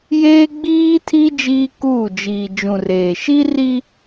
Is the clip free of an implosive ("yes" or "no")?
yes